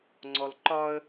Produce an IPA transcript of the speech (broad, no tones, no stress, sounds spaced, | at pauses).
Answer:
ŋ͡ǀ ɔ l ǃ ɒ ə̯